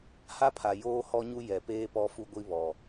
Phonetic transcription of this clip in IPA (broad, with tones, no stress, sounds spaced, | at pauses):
h a˦ pʰ a˨ j oː˦ h ɔ˦ ɲ u˦ j ɛ˨ p eː˦ p ɔ˦ f u˦ ɡʷ i˦ β ɔ˨